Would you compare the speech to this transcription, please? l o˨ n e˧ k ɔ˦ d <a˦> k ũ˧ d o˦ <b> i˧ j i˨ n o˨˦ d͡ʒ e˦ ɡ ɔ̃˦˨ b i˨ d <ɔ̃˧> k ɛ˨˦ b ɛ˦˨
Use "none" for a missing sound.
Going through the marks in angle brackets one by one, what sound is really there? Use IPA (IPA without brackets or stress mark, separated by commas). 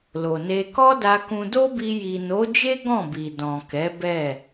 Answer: a˧, b, ɔ̃˨